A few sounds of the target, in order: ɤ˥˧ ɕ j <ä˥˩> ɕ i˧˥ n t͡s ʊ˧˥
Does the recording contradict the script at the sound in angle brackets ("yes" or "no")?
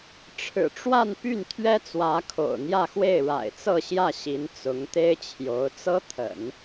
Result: no